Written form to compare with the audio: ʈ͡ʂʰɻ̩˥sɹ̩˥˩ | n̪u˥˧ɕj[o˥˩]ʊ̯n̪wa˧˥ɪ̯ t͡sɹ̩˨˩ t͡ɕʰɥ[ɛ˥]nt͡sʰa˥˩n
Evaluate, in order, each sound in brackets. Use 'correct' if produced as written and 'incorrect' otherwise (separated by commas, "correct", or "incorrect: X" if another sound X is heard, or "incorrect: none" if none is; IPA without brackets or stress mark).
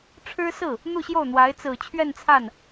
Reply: correct, incorrect: ɛ˥˧